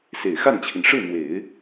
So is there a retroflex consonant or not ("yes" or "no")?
yes